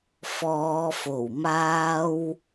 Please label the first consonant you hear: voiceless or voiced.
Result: voiceless